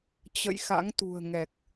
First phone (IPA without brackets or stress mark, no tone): t͡ɕ